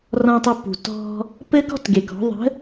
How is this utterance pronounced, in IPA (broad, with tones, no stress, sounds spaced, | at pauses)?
r ɔ̃˧ tˤ ɪ˧ p ṳ˨ t ɔ̤˧ | p ɘ˦ k ɔ̤˦ t ɡ e˨ k ɔ̤˨˦ ðˤ ə̤˨˦